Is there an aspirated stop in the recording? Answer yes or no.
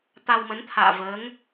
yes